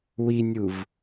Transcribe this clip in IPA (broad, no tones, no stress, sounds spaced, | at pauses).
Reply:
w i nʲ u v